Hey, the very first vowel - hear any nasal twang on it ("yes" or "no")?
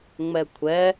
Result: no